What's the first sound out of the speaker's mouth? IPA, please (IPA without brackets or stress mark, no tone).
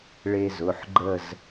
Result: ɭ